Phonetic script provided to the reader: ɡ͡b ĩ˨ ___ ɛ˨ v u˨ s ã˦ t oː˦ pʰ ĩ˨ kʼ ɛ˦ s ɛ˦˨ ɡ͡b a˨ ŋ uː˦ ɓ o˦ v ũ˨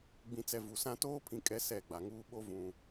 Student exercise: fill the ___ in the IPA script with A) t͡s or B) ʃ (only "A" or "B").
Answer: A